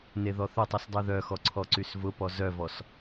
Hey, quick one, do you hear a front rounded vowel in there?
yes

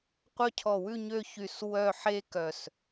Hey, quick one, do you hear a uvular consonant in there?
yes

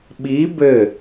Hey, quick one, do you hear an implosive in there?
yes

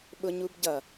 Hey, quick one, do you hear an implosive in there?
yes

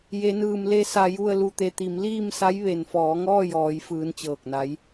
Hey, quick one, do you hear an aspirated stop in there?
no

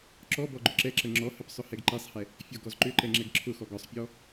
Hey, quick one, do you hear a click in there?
yes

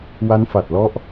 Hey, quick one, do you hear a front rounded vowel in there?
no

